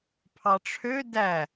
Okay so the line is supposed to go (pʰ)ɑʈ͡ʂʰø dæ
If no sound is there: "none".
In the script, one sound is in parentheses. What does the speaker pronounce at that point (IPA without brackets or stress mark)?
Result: pʰ